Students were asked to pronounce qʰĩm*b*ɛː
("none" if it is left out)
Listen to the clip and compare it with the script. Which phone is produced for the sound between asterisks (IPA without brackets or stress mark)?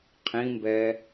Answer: b